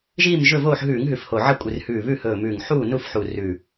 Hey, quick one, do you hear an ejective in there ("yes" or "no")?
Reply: yes